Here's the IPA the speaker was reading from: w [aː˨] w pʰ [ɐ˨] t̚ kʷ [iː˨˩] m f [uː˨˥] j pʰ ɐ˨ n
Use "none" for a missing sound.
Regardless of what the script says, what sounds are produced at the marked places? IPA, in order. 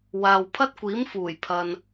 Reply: aː˨, ɐ˥, iː˨˥, uː˨˩

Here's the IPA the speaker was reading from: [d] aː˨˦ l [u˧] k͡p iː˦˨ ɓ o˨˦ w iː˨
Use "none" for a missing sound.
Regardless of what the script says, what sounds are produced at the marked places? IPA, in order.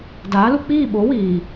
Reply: d, u˧

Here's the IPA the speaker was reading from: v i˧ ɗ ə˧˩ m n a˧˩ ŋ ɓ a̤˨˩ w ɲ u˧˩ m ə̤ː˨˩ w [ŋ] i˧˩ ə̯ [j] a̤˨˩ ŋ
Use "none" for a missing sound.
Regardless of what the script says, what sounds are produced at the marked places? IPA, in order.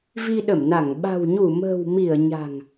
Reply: m, ɲ

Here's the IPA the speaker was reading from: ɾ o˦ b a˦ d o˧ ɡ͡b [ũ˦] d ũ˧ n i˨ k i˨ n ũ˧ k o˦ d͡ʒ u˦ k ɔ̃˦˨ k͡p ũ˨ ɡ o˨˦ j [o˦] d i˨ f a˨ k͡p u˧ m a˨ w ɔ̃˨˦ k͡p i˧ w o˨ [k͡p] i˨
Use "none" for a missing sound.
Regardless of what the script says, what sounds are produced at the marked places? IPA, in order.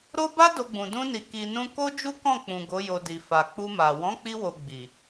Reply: ũ˨, o˧, ɡ͡b

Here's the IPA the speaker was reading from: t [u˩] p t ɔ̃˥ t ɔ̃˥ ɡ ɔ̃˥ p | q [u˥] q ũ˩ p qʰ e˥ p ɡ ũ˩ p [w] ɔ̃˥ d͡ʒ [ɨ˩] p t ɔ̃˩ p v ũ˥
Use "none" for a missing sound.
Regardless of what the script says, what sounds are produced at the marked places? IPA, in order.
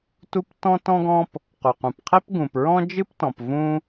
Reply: u˥, u˩, ɹ, ɨ˥

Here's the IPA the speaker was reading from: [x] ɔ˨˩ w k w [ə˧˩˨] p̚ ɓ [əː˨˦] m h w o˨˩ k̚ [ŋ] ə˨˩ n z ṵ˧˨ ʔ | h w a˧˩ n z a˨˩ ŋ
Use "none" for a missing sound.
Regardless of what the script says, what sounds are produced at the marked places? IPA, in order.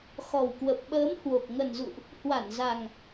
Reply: x, ə˨˩, əː˨˦, ŋ

